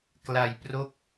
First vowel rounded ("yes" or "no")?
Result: no